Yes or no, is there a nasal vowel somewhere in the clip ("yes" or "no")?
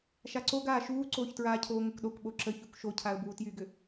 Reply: no